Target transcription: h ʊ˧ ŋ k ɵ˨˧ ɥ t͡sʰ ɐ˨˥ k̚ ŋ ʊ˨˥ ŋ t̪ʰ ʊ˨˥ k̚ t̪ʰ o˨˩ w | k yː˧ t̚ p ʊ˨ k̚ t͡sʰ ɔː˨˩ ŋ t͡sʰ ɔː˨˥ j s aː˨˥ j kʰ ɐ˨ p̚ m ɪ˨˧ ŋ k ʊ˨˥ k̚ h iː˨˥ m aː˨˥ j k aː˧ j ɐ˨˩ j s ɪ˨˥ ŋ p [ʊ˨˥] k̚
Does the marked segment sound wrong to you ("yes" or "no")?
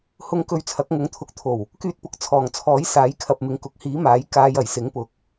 yes